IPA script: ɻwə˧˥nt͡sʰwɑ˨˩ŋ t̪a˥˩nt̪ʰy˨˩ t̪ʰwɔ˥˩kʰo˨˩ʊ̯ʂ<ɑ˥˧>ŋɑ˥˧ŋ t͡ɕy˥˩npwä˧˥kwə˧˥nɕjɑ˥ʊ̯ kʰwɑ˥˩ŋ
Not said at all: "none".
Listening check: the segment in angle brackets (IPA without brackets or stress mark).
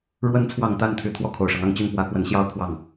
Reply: ɑ˦